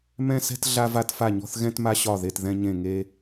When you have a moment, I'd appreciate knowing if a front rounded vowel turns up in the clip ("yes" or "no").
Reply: no